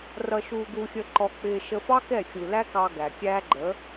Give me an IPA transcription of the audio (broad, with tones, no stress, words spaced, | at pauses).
rʌ˧ʃuː˧ɡu˧xʲə˧ ǃɔ˧k͡pɪː˧ ʃə˧fɑ˦ kɛ˦˨ xʲu˨læ˦kɑ˧ ɡæ˨kʲæː˦ ɡ͡ǃə˨˦